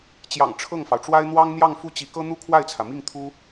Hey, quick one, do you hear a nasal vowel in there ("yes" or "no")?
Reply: no